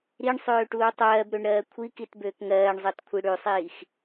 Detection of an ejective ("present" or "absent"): absent